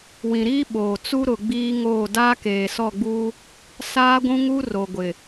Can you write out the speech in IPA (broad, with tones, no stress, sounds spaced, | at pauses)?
w ĩ˨ ɾ iː˦ ɓ oː˨ t͡s u˦ ɾ ʊ˨ ɡ͡b iː˦ ŋ oː˦˨ d aː˦ k eː˨ s ɔ˦˨ ɡ͡b uː˦ | s aː˦ ɡʷ ũ˦ ŋ u˦ r o˨ ɡʷ ɪ˨